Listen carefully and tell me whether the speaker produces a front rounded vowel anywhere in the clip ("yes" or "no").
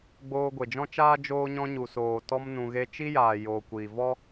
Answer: no